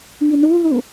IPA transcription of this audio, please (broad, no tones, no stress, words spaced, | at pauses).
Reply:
ŋinuðu